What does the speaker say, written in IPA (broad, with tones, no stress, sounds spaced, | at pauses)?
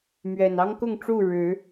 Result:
m ɥ ɛ˨˩ n ɑ˦ ŋ k ʊ˥˨ ŋ ʈ͡ʂ u˥˨ ɻ ɻ̩˨˦